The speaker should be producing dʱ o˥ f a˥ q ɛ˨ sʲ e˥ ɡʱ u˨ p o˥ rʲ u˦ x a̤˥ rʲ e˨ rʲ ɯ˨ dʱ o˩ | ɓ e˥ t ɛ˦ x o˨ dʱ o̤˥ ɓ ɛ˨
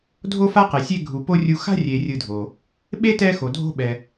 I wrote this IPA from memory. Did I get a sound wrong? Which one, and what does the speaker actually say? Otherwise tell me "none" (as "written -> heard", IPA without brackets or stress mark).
none